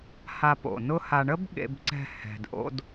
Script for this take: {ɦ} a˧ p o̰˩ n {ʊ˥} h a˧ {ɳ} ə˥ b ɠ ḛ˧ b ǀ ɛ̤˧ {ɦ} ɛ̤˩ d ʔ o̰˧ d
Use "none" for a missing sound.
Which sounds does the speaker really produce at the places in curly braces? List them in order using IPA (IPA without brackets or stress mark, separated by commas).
h, ʊ˥, ɳ, h